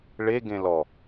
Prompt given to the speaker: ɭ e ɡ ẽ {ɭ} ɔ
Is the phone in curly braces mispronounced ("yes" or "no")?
yes